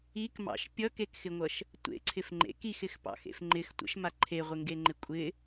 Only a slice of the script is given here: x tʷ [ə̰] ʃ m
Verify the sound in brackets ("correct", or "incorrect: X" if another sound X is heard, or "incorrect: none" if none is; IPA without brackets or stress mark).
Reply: correct